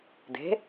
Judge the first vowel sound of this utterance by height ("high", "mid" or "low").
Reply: mid